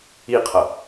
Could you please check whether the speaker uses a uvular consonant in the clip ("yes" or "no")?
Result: yes